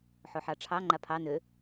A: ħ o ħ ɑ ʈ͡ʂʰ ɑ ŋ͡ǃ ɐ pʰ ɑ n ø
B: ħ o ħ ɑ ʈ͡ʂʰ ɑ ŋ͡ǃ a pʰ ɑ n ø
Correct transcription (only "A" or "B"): B